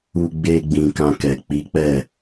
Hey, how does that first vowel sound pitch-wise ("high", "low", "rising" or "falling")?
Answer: low